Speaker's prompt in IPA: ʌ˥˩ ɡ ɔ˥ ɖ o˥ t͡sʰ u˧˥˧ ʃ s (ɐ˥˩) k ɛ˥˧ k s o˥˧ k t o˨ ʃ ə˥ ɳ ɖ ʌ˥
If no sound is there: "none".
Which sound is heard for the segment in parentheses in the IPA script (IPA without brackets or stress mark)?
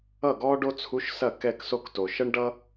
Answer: ɐ˥˩